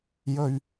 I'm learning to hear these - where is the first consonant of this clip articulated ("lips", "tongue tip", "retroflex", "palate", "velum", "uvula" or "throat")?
palate